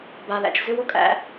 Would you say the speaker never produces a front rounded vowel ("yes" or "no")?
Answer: no